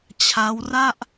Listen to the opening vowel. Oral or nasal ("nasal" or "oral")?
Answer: oral